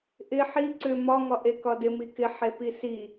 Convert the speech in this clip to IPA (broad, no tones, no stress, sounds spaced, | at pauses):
ʔ ɪ ħ i ǀ ʏ m ɒ ŋ ɒ ʔ e k ɒ d ɪ m i k ɪ ħ e p i s i